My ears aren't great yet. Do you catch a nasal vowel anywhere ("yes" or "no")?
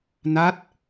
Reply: no